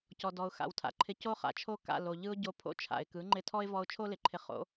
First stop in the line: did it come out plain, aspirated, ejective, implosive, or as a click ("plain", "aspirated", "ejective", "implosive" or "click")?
plain